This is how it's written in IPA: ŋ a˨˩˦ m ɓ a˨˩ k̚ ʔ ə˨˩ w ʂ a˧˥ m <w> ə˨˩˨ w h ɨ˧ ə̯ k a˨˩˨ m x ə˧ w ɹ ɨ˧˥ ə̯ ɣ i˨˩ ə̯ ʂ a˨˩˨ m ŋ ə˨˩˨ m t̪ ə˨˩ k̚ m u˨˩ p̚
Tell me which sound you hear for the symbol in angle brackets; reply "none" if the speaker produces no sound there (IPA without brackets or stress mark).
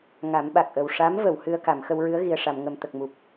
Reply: v